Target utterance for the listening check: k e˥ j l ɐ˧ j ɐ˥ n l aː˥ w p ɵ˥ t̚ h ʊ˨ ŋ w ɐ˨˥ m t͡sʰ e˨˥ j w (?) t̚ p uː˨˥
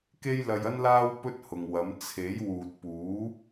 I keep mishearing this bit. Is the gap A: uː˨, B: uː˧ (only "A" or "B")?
A